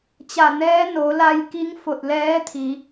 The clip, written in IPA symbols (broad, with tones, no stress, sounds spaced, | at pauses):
t͡ɕ a˧˩ n ɛː˧˥ n o˩˧ l a˧ j k i˧˥ ŋ f o˧˩ t̚ l ɛː˧˥ t̪ʰ i˩˧